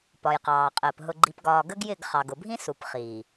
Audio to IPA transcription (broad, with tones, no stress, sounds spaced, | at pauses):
p ɒ˨ j q ɑː˨ qʼ əː˨ p ɦ ʊ˨ ɡ͡ǃ i˨ p ɡ ɒː˨ ɡ ə˦ ɡ j ɪ˦˨ ɡ χ ɑ˨ ɡ ʊ˨ bʱ ĩ˦ s u˨ p χ iː˨